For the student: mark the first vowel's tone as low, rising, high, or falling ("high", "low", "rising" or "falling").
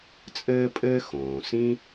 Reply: high